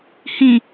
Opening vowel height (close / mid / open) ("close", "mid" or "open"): close